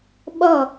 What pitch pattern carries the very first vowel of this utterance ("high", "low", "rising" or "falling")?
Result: falling